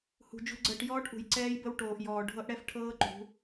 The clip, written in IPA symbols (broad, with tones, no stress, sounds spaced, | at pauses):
h ṳ˨ d͡ʒ ṳ˨ ɡ͡ǀ əː˨ ʈ j ɔː˦ ʈ ʔ ṳ˨ j ǀ ɛː˦ j b ə˦ w ʈ oː˨ ʔ j ɔː˨ ɖʱ ɤ˦ ʔ ɽ ɛ˦ f ʈʰ ɤː˦ ǃ ṳ˨˦